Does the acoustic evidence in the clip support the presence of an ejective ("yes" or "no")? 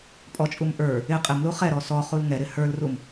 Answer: yes